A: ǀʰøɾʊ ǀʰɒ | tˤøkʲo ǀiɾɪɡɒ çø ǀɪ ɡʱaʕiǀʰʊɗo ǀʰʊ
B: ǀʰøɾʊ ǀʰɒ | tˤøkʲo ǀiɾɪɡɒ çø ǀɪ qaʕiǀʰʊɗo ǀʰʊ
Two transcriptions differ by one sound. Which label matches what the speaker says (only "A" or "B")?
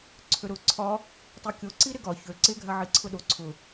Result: A